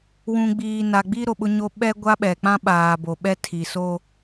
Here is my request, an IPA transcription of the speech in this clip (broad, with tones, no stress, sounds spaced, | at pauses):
w ũ˨ ɡ͡b iː˨ n a˨ ɡ͡b i˦ ɾ o˨ ɓ ʊ˦ ɲ o˦ ɓ ɛ˦ ɡʷ a˦ ɓ ɛ˨ k͡p ã˦ ɓ aː˨ b o˨ ɓ ɛ˦ tʰ i˨ s o˦